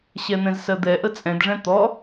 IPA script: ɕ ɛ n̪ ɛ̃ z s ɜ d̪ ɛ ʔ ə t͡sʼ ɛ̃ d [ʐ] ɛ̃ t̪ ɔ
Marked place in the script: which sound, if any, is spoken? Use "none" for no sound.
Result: ʐ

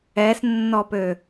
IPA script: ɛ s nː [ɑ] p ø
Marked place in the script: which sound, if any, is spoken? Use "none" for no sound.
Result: ɔ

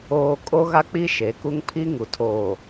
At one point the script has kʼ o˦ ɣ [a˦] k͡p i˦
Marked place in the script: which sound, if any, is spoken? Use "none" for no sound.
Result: a˦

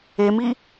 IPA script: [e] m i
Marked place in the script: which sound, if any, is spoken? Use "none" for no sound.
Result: e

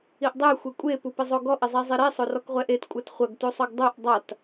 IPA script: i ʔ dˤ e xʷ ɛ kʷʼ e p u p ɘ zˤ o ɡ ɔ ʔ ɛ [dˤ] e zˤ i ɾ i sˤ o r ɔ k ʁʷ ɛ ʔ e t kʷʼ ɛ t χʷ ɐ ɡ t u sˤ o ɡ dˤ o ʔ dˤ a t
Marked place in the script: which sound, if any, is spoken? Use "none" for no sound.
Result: zˤ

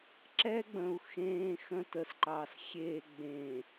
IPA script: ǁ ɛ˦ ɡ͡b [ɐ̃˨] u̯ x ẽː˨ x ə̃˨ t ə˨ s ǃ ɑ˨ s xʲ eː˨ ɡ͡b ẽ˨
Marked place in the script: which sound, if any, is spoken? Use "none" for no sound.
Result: ə̃˨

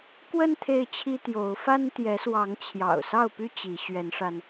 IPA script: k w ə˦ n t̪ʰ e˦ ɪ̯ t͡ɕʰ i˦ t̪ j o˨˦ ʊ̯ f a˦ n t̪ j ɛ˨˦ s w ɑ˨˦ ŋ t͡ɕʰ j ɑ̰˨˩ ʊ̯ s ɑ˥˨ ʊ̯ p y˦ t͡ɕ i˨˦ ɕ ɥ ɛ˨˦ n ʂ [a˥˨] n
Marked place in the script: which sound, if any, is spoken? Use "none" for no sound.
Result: a˧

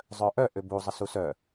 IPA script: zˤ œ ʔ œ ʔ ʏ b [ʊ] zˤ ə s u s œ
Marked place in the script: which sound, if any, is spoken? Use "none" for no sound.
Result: u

